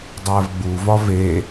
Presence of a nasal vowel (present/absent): absent